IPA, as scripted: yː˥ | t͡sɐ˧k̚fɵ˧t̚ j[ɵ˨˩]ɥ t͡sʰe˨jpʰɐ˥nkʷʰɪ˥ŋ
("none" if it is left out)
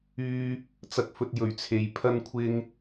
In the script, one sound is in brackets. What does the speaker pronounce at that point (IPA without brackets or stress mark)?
ɵ˨˩